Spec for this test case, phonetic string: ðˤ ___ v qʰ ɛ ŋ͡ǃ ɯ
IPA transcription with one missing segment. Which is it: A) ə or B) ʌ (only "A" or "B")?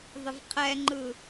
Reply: A